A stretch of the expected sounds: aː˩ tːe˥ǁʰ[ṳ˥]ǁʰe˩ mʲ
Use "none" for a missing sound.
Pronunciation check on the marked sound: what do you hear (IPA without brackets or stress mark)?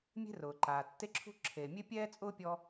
ṳ˥